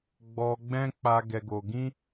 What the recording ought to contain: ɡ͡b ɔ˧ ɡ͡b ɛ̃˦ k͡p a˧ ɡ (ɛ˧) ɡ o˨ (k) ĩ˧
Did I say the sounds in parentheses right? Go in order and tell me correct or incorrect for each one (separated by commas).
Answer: incorrect, incorrect